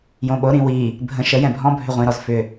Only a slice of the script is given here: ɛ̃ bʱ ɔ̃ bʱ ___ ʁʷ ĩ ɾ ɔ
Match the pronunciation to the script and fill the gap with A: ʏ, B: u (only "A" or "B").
A